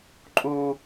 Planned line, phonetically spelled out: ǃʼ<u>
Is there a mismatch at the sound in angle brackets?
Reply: no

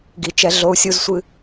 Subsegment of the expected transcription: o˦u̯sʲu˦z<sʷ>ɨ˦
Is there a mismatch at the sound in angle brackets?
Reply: no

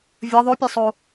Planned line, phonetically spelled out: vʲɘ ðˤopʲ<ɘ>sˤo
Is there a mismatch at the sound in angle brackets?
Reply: yes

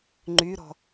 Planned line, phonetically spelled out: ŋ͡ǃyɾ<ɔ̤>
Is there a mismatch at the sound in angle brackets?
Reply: no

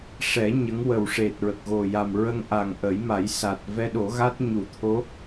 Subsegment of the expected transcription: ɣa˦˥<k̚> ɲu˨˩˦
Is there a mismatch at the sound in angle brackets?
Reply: yes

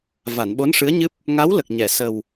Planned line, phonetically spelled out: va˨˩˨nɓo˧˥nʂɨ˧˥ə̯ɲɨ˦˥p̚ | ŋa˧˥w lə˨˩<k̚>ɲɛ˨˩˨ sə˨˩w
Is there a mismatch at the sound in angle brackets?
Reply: no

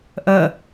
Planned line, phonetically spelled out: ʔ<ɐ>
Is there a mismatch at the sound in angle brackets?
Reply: no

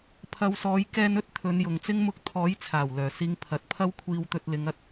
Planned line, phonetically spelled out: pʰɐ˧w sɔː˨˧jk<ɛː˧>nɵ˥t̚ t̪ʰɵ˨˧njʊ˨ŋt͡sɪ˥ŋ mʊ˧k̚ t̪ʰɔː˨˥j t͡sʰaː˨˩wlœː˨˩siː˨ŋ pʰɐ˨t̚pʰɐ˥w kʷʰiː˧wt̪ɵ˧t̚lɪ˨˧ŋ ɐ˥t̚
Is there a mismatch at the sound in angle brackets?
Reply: no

